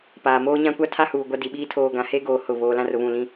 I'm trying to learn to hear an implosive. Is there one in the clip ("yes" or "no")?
yes